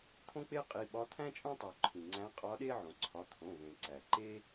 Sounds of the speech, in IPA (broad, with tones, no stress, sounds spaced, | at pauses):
t̪ʰ õ˥ k͡p e˥ qʼ i˩˧˩ ɓ ɒ˧˥ t̪ʰ æ̃˥ t͡ʃʼ õ˥ tˤ o˩ ǃʰ ĩ˩ ŋ͡ǀ æ̃˧˥ qʼ ɒ˧˥ ɗ e˥ ʕ õ˩ ǀʰ ɒ˩˧˩ t̪ʰ õ˩˧˩ v ẽ˩ ǀ æ˩ ǃ e˥